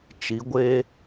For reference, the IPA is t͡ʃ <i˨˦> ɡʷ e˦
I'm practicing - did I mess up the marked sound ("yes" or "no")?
no